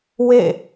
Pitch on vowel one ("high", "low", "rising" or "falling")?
falling